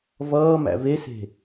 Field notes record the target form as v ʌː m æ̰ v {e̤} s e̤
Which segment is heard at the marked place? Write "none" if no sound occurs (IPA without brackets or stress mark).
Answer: e